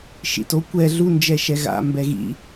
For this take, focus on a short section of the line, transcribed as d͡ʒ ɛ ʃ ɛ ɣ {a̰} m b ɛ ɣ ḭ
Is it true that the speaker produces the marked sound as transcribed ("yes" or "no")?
yes